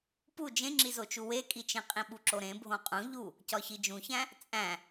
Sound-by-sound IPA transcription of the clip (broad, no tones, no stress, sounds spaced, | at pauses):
p u d͡ʒ ẽ ŋ͡ǁ i z o t͡ʃ u w e kʼ i t͡ʃ ẽ qʼ ĩ ɓ u ǁ o ɾ ẽ bʱ õ qʼ ũ ʎ u | c ɒ ç i d͡ʒ ũ ç æ̃ | t͡sʼ æ̃